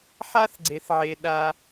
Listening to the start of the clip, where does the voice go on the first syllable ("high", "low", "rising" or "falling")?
high